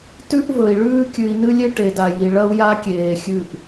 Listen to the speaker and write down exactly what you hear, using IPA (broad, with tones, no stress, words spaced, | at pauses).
tʉ˦ʔvɵ˨i̯ ɭʉː˦kʲʉ˨i̯nɨ˦lʲe˦ ʈe˨da˨ji˨ ɭɐ˦u̯ja˦ kʲeː˨xʲʉ˦˨ʔ